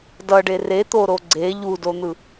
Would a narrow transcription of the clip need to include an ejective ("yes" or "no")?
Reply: no